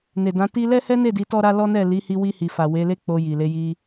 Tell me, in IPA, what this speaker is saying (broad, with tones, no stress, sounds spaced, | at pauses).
n e˨ d ã˨˦ t i˧ l ɛ˦ h ɛ˦ n e˦˨ d i˨˦ t ɔ˦ ɾ a˦ l ɔ˦ n ɛ˦˨ l i˨˦ h i˧ w i˧ h i˨ f a˨ w e˨˦ l e˦ k͡p o˧ j i˨ l e˨˦ j i˧